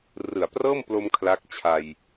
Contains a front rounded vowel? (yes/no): no